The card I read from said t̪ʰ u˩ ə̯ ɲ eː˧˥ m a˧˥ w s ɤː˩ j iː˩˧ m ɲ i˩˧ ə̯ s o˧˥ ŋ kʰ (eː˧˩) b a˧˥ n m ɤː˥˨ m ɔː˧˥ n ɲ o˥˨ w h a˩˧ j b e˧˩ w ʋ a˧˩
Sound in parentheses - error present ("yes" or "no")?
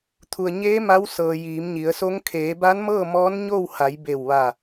yes